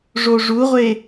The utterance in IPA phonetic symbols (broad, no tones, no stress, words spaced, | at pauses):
ʐoʐuʁʷe